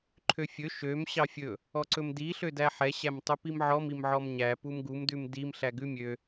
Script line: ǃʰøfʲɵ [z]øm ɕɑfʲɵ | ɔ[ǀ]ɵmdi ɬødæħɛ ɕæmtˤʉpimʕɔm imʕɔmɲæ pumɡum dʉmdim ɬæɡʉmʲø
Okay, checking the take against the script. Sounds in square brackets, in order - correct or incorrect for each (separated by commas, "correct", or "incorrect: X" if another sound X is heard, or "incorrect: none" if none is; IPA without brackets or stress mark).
incorrect: ʃ, correct